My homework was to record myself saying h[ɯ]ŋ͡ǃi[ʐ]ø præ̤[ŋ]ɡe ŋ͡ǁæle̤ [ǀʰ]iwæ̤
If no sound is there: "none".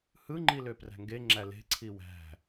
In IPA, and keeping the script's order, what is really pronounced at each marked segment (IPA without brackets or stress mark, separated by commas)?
ɯ, l, ŋ, ǀʰ